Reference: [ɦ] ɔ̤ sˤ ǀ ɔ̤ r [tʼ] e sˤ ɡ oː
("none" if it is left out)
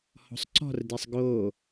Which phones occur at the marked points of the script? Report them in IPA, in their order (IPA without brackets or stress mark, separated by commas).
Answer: h, d